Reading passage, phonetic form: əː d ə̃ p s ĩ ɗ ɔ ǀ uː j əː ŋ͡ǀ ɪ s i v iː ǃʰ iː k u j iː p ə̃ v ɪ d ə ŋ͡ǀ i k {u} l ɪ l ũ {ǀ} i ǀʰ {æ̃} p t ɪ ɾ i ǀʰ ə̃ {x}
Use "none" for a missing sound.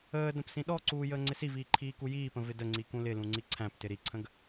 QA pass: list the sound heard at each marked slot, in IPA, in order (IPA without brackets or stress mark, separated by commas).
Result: ũ, ŋ͡ǀ, æ̃, ɡ